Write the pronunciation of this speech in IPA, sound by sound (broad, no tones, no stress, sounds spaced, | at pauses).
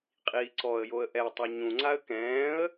qʼ iː ǀ ɔ ə̯ j o ə̯ ʔ ɛ tˤ o ɲ ũ ŋ͡ǀ a ə̯ k ɛ̃ː ə̯